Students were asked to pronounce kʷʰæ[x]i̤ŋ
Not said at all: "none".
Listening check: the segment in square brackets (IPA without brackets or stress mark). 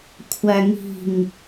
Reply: ŋ